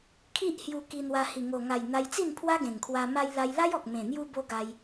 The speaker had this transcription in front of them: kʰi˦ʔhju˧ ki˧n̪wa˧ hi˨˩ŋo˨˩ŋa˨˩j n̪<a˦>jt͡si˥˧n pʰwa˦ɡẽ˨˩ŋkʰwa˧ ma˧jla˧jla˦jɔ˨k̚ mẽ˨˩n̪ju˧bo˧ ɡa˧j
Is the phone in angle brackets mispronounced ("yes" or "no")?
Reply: yes